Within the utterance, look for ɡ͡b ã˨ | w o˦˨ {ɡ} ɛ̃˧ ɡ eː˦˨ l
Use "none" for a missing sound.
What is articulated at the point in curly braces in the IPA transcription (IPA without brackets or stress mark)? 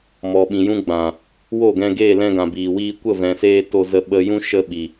ɡ